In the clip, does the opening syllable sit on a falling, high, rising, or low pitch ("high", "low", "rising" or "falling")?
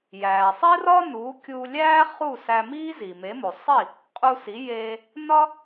low